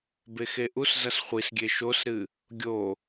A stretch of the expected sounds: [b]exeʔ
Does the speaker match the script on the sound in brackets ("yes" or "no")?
yes